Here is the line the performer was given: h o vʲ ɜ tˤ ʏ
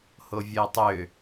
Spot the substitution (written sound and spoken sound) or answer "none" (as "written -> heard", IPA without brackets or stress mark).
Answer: none